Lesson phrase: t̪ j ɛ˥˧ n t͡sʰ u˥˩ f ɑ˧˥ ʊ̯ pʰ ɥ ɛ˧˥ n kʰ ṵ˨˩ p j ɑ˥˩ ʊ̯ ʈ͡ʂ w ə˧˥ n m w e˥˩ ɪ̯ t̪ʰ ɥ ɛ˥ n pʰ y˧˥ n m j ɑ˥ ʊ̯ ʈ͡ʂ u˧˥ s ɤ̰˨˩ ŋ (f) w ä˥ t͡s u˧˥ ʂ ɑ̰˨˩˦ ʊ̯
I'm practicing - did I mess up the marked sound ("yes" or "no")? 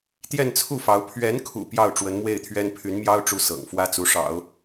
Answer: no